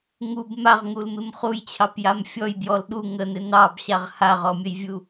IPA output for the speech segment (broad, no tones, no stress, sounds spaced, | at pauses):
ŋ u b m a ʁ ŋ u l m ɪ m χ u j t͡ɕʰ ɑ p j a m fʲ ɔ j b j ɔ l ɗ u ŋ ə n ɪ n ɑ b ɕ a ʁ h a ʁ ɔ mʲ ə j vʲ u